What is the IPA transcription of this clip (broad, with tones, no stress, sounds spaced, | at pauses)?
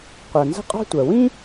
qʷ ɜ˩ n z ə̤˥ qʼ ɑ̤˥ tʷ ɜ˩ w ĩ˥